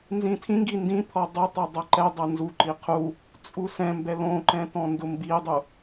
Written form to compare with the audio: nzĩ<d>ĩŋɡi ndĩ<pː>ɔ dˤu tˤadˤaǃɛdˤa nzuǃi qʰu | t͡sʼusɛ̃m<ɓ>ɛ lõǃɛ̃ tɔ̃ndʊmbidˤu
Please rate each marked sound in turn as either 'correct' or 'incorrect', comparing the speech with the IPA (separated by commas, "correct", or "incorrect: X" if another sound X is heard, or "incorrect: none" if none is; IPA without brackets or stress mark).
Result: incorrect: tʰ, incorrect: pʰ, incorrect: b